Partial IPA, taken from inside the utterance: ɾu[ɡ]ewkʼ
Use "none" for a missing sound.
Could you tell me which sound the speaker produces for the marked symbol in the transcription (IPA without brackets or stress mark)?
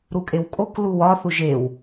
kʼ